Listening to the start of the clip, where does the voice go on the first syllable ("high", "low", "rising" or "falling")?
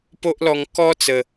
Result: high